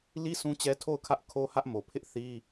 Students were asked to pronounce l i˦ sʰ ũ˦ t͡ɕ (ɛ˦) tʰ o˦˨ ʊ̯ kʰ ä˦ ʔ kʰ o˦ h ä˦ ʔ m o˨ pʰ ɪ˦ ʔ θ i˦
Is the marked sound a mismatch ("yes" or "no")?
no